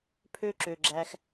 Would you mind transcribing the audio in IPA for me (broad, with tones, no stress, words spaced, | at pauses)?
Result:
pʰø˦ ǁø˨ɡ͡ǁæ˧x